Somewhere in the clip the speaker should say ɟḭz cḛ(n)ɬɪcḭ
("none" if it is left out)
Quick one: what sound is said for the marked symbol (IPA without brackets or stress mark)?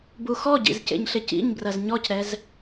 ɲ